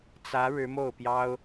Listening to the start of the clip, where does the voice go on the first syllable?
rising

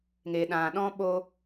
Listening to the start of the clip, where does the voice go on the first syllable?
low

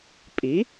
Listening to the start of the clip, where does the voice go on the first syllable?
rising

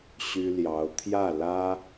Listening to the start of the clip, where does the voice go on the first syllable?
high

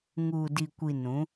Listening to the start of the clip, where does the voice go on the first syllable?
low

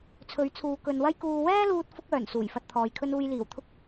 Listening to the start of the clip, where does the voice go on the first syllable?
rising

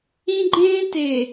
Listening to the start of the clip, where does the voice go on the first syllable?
high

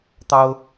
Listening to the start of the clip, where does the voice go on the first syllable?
high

